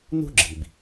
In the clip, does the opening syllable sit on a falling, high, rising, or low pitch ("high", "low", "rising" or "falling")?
high